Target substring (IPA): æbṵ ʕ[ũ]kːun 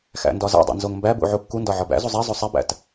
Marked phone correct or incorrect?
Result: incorrect